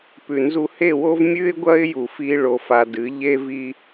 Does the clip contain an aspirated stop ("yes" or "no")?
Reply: no